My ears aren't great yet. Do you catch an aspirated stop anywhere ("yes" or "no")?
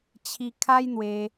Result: yes